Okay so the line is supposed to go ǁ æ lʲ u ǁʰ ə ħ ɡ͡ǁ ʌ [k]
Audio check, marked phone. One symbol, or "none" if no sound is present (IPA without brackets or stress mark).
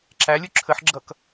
k